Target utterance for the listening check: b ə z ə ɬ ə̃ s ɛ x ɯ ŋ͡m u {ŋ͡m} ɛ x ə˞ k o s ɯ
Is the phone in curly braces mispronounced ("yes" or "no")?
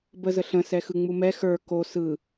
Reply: yes